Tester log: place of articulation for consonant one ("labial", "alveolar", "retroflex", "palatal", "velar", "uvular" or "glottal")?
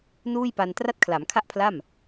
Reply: alveolar